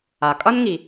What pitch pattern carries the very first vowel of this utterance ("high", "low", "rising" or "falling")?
low